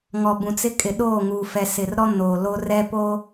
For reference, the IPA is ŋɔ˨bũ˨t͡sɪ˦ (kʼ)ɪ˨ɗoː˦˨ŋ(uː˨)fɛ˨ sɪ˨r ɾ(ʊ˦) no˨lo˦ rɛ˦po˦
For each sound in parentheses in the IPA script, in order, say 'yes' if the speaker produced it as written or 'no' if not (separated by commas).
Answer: yes, yes, no